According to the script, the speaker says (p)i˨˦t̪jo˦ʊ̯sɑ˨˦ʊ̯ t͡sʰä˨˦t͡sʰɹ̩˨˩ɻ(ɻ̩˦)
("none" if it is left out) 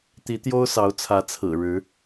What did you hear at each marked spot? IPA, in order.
t̪, ɻ̩˨˦

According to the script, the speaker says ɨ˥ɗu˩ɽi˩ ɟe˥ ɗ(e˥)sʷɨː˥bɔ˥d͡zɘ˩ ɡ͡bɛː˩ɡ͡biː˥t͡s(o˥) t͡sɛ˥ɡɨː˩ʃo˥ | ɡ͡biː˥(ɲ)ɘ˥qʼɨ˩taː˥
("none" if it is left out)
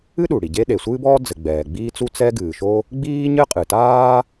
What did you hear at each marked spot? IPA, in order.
e˩, u˥, ɲ

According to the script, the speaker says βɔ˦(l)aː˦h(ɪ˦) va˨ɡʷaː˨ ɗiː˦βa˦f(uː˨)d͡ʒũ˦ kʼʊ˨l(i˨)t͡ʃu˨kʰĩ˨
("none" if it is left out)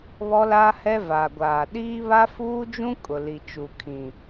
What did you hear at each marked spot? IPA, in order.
l, ɛ˦, uː˦, i˨

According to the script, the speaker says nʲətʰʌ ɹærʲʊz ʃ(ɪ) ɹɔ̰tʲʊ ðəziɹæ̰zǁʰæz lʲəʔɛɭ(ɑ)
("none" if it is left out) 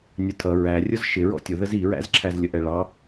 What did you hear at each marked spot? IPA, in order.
ɪ, ɑ

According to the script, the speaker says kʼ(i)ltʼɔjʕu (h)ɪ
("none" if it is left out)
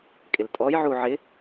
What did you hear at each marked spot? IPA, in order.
ɪ, ʕ

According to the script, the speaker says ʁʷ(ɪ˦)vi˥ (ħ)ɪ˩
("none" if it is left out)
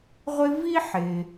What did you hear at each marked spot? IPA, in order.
ɪ˦, ħ

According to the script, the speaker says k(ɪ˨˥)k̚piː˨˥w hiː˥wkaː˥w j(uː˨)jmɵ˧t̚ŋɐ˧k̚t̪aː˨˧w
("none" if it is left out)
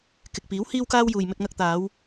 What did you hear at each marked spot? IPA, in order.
ɪ˨, uː˨

